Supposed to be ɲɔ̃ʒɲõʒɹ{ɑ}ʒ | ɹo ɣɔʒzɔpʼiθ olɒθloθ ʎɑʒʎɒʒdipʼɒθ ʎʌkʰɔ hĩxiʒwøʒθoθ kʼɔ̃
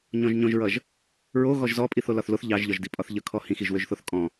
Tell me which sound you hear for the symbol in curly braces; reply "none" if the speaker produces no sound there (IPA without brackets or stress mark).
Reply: ʌ